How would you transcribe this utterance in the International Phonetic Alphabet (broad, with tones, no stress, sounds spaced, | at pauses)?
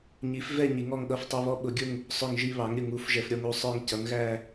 ɲ i˩˥ f v ɛ˦˨ ɲ i˩˥ ŋ ɔ˦˨ ŋ ɠ ʌ˦˨ f tˤ i˦˨ β ɔ˦˨ ɓ ʊ˩˥ ɡʲ ʊ˦˨ ŋ | sˤ ʊ˦˨ ŋ ʒ i˦˨ β ɑ˩˥ ŋ ɾʲ ʊ˨ ŋ u˩˥ f ʒ ɛ˨ f ɾʲ ɔ˦˨ ŋ u˦˨ sˤ ə˞˦˨ ŋ c ʌ˩˥ ŋ ɣ æ˦˨